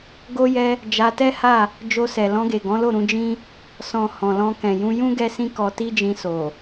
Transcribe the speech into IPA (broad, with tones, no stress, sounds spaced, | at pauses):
ɡ o˦ j ɛ˦ | d͡ʒ a˧ t ɛ˦ h a˦˨ | d͡ʒ o˧ s ɛ˨ l ɔ̃˧ ɡ e˨ ɡ ɔ̃˨˦ l o˦˨ ɾ ũ˧ d͡ʒ ĩ˦ | s ɔ̃˨ h ɔ̃˨ l ɔ̃˧ k ɛ̃˨ j ũ˧ j ũ˦ ɡ ɛ˦ s ĩ˦ k ɔ˧ t i˦ d͡ʒ ĩ˧ s o˨